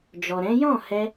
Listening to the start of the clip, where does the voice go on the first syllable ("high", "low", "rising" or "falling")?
low